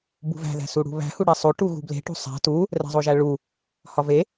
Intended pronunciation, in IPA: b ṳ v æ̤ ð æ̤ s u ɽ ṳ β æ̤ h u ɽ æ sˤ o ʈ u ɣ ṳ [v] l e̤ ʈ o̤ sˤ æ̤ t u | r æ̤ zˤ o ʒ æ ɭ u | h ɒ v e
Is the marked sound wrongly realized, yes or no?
yes